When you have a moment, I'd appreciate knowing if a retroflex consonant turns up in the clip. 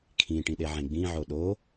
yes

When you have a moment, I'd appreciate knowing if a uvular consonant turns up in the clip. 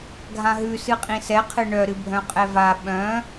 yes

